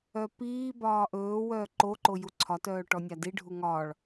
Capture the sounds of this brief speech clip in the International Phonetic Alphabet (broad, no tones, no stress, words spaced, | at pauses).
œpiːbɒː ʔɵː wœːǃoǃo juǀʰɒtœː ʈɔnʲadiɖʱu ŋɒːɭ